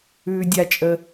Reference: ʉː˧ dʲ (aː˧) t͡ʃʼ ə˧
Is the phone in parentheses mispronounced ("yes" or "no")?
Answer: yes